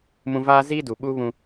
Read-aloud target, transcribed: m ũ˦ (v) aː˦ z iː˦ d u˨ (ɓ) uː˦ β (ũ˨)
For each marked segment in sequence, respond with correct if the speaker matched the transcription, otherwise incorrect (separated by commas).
correct, correct, incorrect